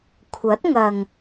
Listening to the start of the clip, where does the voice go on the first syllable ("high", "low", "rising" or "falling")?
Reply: rising